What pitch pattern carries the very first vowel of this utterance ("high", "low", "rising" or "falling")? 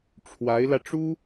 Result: rising